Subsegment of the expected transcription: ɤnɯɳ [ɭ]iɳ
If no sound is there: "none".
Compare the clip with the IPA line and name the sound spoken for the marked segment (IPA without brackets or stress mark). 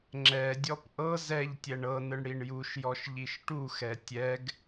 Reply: ɽ